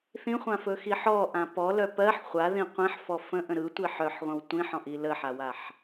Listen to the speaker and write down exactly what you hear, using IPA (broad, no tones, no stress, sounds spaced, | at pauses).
θ ĩ χʷ ã f ɵ x i ħ ɔ ʔ ã p ɔ l œ p ɜ ħ χʷ a ð ĩ qʷ ĩ ħ f ɔ f ə̃ ʔ ə̃ ɾ ɯ tʷ i ħ œ ħ ʁʷ ə̃ w tʷ ĩ ħ ɔ̃ ʔ i l ə ħ a w a ħ